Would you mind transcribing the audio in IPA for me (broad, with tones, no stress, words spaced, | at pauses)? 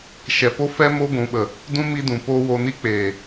ʃɛ˨po˧fɛ˧ mo˧ɡʷũ˨ɓə˨ | dũ˦mi˧dũ˨poː˧ wo˧ni˦ k͡peː˨